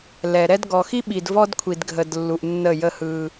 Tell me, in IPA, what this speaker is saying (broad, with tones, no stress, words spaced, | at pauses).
lɛ˨ɾɛ˦d ɡɔ˨xi˦ ɓi˨d vɔ˦dkʷʰi˨dɡʱə˨d lːu˨ʔnːə˦˨ jə˦hɯ˦